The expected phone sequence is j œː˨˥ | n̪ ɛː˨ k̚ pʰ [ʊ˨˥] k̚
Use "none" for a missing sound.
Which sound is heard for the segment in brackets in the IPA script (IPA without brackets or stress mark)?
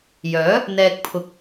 ʊ˨˥